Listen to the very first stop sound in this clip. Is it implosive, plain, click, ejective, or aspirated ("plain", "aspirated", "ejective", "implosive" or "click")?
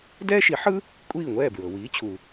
plain